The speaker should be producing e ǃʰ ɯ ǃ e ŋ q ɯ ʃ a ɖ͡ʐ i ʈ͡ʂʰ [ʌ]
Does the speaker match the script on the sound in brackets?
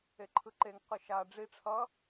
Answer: yes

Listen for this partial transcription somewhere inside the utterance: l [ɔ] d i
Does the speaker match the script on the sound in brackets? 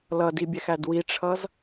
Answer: no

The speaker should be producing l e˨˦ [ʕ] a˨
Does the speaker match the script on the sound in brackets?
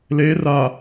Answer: no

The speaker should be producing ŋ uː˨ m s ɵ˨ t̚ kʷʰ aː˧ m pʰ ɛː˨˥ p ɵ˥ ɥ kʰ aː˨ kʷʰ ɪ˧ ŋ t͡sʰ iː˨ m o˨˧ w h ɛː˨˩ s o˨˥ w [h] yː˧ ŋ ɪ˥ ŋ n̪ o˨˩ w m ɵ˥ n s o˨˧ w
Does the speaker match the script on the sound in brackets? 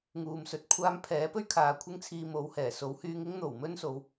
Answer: yes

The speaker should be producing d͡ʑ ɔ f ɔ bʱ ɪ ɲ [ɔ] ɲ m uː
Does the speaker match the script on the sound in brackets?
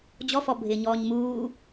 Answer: no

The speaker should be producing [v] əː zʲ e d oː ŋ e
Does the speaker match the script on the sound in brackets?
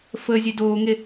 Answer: no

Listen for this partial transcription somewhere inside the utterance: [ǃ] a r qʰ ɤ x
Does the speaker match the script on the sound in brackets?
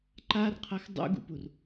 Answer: yes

